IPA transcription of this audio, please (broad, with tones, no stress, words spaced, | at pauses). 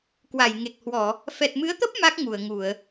kwa˧˩jŋe˨˩k̚hwɔ˧˩˨ | fɛ˨˩t̚mɨ˨˦ə̯t̪ə˦˥p̚ ma˦˥k̚ ŋu˧˩ə̯ŋu˧˩˨ə̯